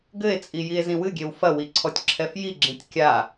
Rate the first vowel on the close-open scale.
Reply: mid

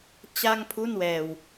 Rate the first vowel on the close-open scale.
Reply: open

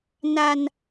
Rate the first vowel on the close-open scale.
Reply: open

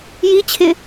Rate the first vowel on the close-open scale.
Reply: close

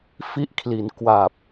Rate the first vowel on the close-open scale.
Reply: close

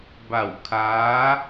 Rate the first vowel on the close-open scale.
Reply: open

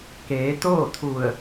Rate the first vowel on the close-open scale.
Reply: mid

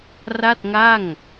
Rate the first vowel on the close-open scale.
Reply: open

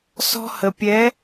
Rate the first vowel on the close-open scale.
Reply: mid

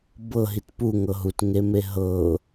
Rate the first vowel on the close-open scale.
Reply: mid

